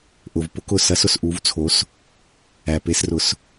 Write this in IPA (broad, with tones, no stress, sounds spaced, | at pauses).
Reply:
ʔ ʊ˩ v p ʊ˨˦ k ʊ˩ s ɐ˨˦ s ʊ˩ s ʔ u˨˦ v t͡sʰ o˨˦ s | æ˩ p e˨˦ s r ʊ˨˦ s